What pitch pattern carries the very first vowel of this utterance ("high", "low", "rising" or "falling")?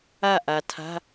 falling